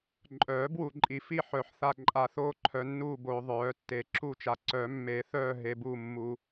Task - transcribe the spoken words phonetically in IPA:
ǃʼ œː˨˩˦ b w u˨ ǃʼ i˨ f i˦˨ ħ œ˨˩˦ ħ θ a˦˨ ǃʼ a˦˨ θ oː˦˨ ǃʰ œ˨ nː uː˦˨ b oː˨ ðˤ œː˨˩˦ tː e˨˩˦ ǁ u˦˨ t͡ʃ a˨ ǀ œ˨˩˦ mː e˨˩˦ θ œː˦˨ ɦ e˨ b uː˦˨ mː u˨

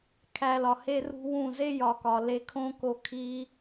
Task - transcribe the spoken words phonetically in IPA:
kʰ æ˧ l ɒ˨ h e˦ r ṳ˦ w ũ˦˨ z e˦ j ɒ˨ k ɒ˨ l e˧ kʰ õ˦ k o˧ kʰ i˧

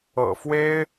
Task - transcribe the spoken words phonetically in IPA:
ɤ̰˨˩ f w e˥ ɪ̯

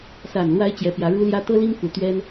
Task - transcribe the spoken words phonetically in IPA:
s a˨˩ n l w a˧˥ ɪ̯ t͡ɕ j ɛ˧˥ p j ä˧˥ ɻ u˥ l j ä˥ t̪ ɤ˥ l i˥ ŋ f u˨˩ t̪ ɥ ɛ˥ n

